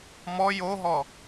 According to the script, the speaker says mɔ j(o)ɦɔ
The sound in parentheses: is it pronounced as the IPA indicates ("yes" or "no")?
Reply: yes